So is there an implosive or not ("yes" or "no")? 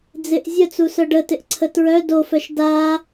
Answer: no